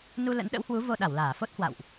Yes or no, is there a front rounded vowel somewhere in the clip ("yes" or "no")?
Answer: no